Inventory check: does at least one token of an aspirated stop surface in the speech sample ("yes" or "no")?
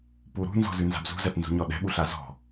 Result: no